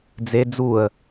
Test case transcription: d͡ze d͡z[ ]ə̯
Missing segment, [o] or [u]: u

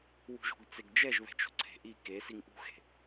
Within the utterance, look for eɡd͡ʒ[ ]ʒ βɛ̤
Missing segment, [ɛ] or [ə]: ɛ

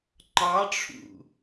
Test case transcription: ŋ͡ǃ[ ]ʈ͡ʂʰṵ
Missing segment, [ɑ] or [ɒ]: ɑ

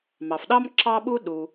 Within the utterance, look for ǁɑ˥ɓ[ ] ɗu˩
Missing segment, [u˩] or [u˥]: u˥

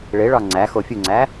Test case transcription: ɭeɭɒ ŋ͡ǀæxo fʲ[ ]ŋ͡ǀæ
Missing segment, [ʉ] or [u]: u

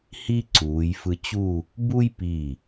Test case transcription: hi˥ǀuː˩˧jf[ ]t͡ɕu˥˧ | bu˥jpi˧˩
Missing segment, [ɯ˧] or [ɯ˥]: ɯ˧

